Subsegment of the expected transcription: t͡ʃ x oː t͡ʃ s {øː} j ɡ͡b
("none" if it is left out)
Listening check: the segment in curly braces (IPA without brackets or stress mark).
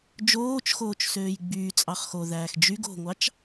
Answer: øː